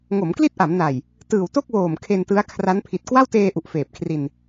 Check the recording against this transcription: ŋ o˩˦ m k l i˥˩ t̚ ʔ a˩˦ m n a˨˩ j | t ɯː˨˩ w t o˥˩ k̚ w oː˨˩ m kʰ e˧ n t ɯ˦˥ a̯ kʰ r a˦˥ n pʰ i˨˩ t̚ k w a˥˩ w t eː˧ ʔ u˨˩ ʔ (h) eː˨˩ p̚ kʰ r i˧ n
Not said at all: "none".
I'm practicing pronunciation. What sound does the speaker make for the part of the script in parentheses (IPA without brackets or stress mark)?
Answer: f